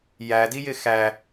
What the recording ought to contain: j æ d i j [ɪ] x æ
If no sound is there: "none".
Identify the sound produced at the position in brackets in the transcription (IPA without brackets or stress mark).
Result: ɪ